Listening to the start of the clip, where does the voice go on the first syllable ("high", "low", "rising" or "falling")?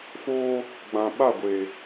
high